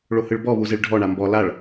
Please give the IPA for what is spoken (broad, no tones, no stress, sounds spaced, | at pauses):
ɭ o h ɯ ɭ b ɔ β u z e ɭ ɖʱ ɔ ɳ a m b ɔ l a ɭ